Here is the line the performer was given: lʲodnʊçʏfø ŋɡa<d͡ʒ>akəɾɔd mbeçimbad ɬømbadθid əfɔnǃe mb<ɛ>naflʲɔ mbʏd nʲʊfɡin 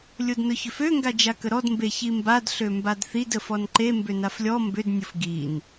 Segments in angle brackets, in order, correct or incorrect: correct, incorrect

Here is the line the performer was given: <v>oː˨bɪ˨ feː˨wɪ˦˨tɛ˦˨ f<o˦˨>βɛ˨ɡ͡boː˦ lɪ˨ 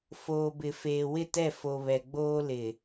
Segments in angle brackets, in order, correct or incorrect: incorrect, incorrect

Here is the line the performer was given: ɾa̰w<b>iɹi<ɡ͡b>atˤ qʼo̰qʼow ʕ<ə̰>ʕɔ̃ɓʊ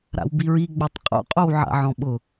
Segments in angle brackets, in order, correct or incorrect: correct, correct, incorrect

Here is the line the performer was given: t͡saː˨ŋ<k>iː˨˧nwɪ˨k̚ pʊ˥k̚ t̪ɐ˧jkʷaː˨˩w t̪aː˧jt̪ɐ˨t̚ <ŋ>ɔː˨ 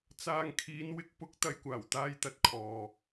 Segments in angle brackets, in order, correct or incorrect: incorrect, incorrect

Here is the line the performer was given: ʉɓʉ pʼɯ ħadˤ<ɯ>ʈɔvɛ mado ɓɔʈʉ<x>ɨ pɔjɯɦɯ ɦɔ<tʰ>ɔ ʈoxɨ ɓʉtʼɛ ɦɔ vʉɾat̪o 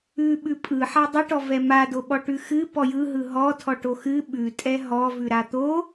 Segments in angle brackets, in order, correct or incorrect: correct, correct, correct

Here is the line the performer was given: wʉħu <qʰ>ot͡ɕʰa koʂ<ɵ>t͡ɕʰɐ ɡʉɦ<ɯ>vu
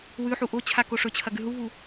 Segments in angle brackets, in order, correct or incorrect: incorrect, correct, incorrect

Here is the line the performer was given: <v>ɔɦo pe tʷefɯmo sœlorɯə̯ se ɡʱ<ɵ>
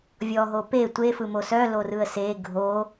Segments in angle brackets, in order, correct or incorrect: incorrect, incorrect

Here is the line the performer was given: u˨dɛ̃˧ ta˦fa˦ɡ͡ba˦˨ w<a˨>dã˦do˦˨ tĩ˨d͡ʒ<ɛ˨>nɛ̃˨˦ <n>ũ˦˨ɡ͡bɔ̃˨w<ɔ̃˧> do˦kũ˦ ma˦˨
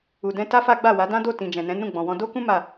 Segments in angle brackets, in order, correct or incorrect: incorrect, incorrect, correct, correct

